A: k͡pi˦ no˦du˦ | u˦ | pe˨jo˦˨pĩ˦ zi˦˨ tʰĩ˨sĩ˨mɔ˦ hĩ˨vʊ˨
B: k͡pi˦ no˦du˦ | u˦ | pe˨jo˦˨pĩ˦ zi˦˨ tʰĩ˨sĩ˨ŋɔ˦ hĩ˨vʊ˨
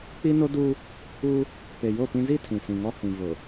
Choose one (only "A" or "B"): B